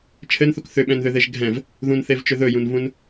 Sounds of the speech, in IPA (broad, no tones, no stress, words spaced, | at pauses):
t͡ʃʰɘnθuk θʏɓɛ̃nðʏðeʒ ɡʱɛ̃v | ðũnθevt͡ʃʏ ðɵjũnvũn